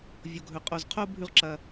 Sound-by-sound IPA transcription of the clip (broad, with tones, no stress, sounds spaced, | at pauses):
vʲ o˩ ɡʱ ɵ˩ qʼ o˩ z qʰ o˥ bʱ ʉ˧ ʁ ǁ ɐ˩